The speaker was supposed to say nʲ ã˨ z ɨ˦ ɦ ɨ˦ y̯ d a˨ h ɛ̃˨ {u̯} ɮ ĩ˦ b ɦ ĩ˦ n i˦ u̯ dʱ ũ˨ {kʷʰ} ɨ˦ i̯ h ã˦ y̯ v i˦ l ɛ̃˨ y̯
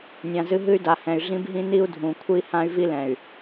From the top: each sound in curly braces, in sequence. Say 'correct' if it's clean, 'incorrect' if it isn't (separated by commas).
incorrect, correct